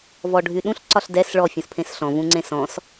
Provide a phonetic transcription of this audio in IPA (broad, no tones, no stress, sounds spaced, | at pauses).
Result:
v ɔ ɖʱ y ɗ ũ ɬ ǀ ɒ ɬ d ɛ s ɭ ɔ fʲ ũ s pʰ ẽ s ɬ ɔ̃ v ũ ŋ͡ǀ ẽ s ɔ̃ s